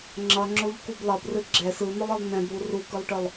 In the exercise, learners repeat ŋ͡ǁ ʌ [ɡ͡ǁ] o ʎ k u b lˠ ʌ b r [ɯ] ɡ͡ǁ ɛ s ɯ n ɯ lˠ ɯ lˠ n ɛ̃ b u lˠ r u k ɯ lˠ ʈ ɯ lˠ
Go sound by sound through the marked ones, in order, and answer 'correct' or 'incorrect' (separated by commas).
incorrect, correct